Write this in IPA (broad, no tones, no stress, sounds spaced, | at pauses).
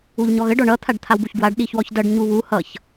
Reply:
u ʎ ɲ ɔ ɣ ə ɖ ɔ ɳ ʌ t̪ʰ a ɖ t̪ʰ a w b u ç ɡ w a ɖ ɗ i ç w ɔ ç d ʌ ɖ ɲ u β u h ʌ ç